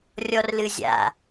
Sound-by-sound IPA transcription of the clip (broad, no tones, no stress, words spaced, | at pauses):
rʲɔrlɨzʲa̰